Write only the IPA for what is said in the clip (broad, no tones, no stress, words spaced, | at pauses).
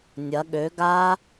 nʲɐ ɠø ɡa